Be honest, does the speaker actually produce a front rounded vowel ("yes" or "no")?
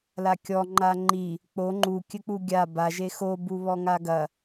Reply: no